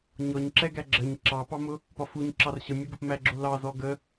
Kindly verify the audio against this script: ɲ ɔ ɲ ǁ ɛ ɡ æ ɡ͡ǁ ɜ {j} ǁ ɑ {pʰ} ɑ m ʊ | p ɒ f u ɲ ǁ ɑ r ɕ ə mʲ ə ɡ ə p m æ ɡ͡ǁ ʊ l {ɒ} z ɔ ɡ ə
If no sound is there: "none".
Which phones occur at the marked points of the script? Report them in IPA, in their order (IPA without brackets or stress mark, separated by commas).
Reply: ɲ, p, ɑ